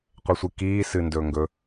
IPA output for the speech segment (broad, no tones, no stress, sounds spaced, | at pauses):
qʷ e sʷ ɨ k iː s ɨ n d ɵː ŋ ɡ ɵ